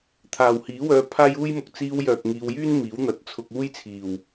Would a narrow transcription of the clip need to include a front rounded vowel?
yes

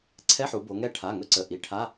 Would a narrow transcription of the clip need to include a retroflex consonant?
yes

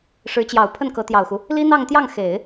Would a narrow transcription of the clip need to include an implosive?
no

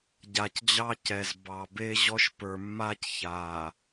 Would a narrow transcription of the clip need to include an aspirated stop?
no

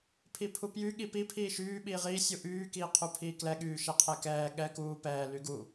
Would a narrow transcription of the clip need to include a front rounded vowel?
yes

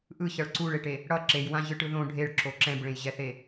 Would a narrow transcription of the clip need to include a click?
yes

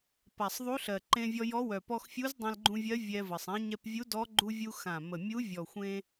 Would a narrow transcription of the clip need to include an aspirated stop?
no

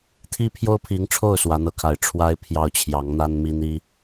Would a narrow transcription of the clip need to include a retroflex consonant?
yes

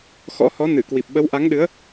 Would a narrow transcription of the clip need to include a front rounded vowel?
no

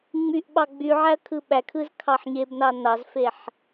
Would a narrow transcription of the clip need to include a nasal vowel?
no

